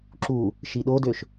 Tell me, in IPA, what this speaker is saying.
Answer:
ǁ u | ʃ i ɗ o d ø ʃ

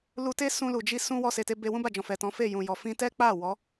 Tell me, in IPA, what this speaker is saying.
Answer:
l u˧ t e˦ s ũ˧ l u˨ d͡ʒ i˧ s ũ˦ w ɔ˧ s e˨ t e˧ b e˧ w ũ˦ b a˦˨ d͡ʒ ɔ̃˨ f ɛ˨ t ɔ̃˨˦ f e˦˨ j ũ˨ j ɔ˨ f ĩ˧ t ɛ˦ k͡p a˦˨ w ɔ˨˦

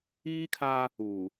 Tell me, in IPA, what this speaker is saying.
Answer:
iː˦ kʰ aː˦ | uː˨

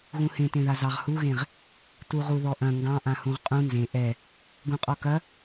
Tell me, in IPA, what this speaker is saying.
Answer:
ɣ ũ h ẽ t ẽ ð a z ɑ ʁ h u ɣ ẽ ʁ | t u ʁ u ð ɔ ʔ ɐ̃ ŋ ɡ ɑ̃ ʔ ã h ũ ʁ qʼ ũ n z ẽ ʔ ɛ | ɡ ũ qʼ ɔ k ɐ

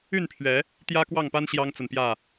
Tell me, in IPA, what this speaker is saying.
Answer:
y˥˨ n pʰ ɥ ɛ˨˦ | t̪ j ä˦ k w ɑ˥˨ ŋ p a˦ n ɕ j ɑ˦ ŋ t͡s ə˨ n p j ä˥˨

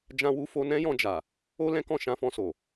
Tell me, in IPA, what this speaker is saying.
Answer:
d͡ʒ ã˧ w u˧ f o˧ n ɛ̃˦ j ɔ̃˧ d͡ʒ a˨ | o˦ l ɛ̃˦ k ɔ̃˦˨ ʃ ã˧ f ɔ̃˧ s o˨

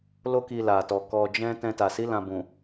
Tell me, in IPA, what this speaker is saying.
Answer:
l o˦ k i˧ l a˨ t ɔ˨ k ɔ˧ d͡ʒ ɛ̃˦ t ɛ̃˧ t a˨ s i˨˦ l ã˧ b ũ˨

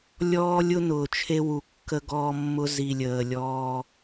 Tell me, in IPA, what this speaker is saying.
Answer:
lʲ ɔː˦ lʲ ʊ˦ n ʊː˨ t͡ʃʰ e˦ w u˨ kː ə˦ ɡ ɔː˦ mː ʊ˦ z i˨ lʲ əː˨ lʲ ɔː˦

